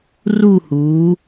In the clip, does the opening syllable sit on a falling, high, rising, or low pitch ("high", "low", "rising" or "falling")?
falling